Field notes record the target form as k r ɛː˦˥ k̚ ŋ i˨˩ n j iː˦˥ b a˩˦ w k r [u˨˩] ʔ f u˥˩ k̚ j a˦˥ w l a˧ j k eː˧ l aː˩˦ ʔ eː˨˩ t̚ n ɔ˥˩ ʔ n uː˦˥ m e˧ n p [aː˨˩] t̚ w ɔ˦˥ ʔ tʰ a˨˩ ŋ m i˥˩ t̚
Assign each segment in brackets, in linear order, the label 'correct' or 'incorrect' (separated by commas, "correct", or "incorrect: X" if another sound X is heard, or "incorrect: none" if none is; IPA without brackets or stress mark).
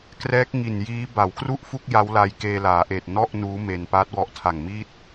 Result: incorrect: u˥˩, incorrect: aː˦˥